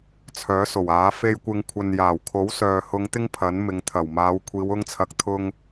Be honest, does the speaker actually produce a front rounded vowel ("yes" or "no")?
yes